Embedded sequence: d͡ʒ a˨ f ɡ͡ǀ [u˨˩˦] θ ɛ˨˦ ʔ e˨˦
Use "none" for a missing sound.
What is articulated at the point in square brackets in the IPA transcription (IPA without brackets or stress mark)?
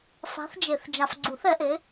u˨˩˦